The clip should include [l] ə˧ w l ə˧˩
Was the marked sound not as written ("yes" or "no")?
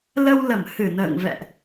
no